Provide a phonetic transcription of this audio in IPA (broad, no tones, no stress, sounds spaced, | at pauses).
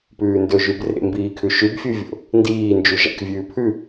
p ʉː n d ɵ ʒ ʉ b r ḛ m b iː kʰ ʉ ʃ ʉ b fʲ u vʲ o̰ | n d iː n d͡ʒ u ʒ a̰ k vʲ ʉː pʰ ʉ